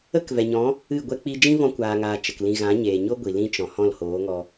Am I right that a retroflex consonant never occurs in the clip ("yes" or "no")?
yes